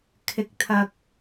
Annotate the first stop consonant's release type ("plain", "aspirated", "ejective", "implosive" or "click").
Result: aspirated